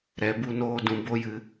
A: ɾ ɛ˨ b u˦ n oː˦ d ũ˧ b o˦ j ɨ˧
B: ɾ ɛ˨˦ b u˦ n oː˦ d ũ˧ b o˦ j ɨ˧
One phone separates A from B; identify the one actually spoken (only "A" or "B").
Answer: B